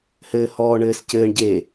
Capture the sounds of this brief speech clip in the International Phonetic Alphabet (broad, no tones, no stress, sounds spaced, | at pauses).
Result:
h ɘː h ɔː ɳ ɘː s c ɘː ɳ ɟ e